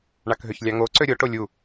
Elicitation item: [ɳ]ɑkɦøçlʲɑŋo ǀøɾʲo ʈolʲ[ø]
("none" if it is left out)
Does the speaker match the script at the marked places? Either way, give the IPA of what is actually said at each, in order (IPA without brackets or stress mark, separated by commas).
ɳ, u